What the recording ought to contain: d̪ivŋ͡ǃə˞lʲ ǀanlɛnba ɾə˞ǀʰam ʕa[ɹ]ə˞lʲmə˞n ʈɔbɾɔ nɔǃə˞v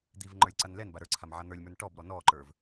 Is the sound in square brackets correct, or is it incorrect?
incorrect